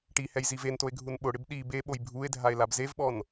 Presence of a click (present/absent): absent